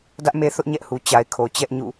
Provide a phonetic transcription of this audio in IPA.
d ä˦ ʔ m e˦ θ ʊ˦ ʔ ɲ ɛ˦ ʔ h u˨ t͡ɕ a˨ ɪ̯ kʰ o˨ t͡ɕ ɛ˦ ʔ ɲ ṵ˦˨

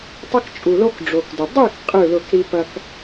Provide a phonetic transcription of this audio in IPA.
tˤ ɐ˦ k t͡ʃʼ u˨ l o˦ k ɖ͡ʐ o˨ k d ə˨ dˤ ʉ˥˨ k qʼ ɯ˥˨ l ʊ˥˨ k ɾ i˦ p ɐ˦ k

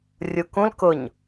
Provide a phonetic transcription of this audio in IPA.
rʲ u k ũ l k ʊ ɲ

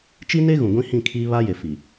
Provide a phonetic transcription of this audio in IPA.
t͡ʃ i˦ n e˦ ɣ ũ˨ ɡʷ ĩ˦ h ĩ˦˨ kʰ iː˦ β a˦ j e˨ f i˨

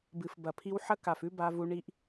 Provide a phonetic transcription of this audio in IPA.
b ɨ˨ f b ɐ˨ pʰ i˦ w ħ ɐ˦ k a˨ f ʉ˦ b a˦ v u˦ ɳ i˦ ʔ

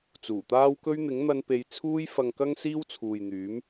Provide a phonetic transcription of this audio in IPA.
t͡s uː˨˩ t̪ aː˥ w k ɵ˥ ɥ n̪ ɪ˨˥ ŋ n̪ ɐ˧ n p e˨˧ j t͡sʰ uː˥ j f ɐ˧ ŋ k ɐ˥ ŋ s iː˥ w t͡sʰ uː˨ j n̪ yː˨˥ m

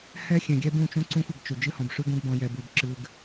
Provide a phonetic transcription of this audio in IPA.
h ɛ˦ xʲ ɛ̃˨ ɡʲ ɛ˦ b ũ˦˨ t͡ʃ ũ˦ ǀ ũ˦ xʷ ə˨ ɡ t͡ʃ y˨ d͡ʒ ɨ˦ h ɔ̃˨ b ʂ ʉ˦ ɡ ũ˦ ɡ b ɔ̃˦ j ɛ˦ b y˦ b ǁ ɨ˦ ɡ

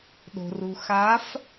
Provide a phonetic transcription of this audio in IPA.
ɗ o̤˨ r u˨ x a˨˦ f

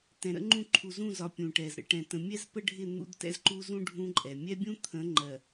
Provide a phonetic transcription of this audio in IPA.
t ɛ̃˨ ɾ ə̰˦ ŋ͡ǃ ũ˦˨ ǃʰ u˨ z ũ˦˨ z ɒ˨ pʲ ũ˨ ʈ ɛ˨ z ɾ ə̰˦ ʈ ɛ̃˨ t ə̃˨ mʲ ɛ˦ z p ə˦ ɖʱ ɪ˦˨ n̪ ṵ˦ d t ɛ̰˦ z ǃ u˦ z ũ˦ ɖʱ ũ˦ ǃʼ ɛ˨ mʲ ɛ˦ bʲ ũ˦ t̪ʰ ə̃˨˦ ŋ͡ǃ ɜ˨

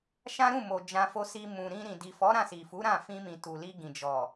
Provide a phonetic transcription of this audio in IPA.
ʃ ã˦ ɾ ũ˦˨ m o˨ d͡ʒ ã˧ f o˧ s i˧ m ũ˨ ɾ ĩ˧ ɾ ĩ˨ d i˨ f ɔ˨˦ ɾ ã˦˨ s i˨ f u˨˦ ɾ ã˦˨ f ĩ˧ m ĩ˨ t u˨ l i˧ ɡ ĩ˨ d͡ʒ ɔ˨

